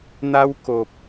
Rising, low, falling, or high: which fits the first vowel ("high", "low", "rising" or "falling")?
high